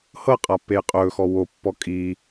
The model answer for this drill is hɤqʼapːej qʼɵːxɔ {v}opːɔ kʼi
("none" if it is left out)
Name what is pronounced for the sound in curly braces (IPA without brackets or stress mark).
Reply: w